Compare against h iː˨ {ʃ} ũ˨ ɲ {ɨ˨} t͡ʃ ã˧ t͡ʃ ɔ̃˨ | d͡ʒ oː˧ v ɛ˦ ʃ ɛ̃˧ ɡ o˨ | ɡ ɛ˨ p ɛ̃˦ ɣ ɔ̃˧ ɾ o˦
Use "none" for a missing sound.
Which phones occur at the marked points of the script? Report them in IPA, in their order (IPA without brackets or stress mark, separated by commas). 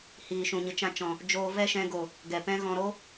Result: ʃ, ɨ˨